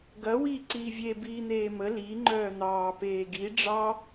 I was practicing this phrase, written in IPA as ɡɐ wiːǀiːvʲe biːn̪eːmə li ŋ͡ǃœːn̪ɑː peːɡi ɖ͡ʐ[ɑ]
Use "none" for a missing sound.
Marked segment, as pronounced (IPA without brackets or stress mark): ɑ